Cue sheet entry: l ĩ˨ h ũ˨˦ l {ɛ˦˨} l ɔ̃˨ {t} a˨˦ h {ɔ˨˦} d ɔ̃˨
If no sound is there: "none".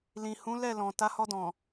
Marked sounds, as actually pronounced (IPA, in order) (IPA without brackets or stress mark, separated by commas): ɛ˦˨, t, ɔ˧